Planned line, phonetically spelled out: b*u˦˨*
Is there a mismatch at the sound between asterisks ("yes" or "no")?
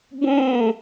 yes